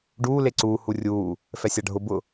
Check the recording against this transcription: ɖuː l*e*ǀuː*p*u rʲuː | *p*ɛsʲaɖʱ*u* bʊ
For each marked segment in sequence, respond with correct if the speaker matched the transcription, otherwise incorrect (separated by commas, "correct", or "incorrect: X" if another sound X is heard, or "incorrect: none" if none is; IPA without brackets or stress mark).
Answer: correct, incorrect: h, incorrect: f, incorrect: ʊ